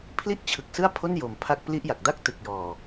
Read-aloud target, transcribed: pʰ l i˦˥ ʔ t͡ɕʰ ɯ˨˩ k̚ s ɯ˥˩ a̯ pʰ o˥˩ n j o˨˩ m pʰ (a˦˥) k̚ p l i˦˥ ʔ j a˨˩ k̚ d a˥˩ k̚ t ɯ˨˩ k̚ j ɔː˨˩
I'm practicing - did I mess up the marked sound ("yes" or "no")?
no